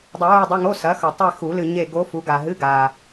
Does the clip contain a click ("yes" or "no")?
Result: no